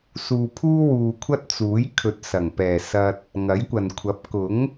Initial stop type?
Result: aspirated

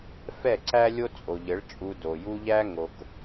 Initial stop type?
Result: click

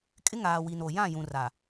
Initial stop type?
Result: ejective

